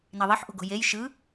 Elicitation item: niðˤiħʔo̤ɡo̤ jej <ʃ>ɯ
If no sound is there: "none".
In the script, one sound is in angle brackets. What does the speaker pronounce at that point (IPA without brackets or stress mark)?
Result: ʃ